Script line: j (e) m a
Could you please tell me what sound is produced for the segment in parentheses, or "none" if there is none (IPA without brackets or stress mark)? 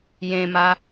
ẽ